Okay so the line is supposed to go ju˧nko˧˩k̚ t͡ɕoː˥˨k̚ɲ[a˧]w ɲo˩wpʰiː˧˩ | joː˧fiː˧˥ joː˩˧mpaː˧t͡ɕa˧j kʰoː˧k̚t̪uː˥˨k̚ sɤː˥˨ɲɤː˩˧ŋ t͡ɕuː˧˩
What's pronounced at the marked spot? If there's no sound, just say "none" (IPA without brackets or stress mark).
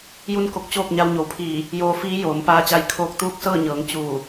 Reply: a˧